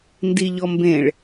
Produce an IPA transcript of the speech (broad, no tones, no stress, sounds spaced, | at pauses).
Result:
n d i ʎ ɔ m b ẽ ɭ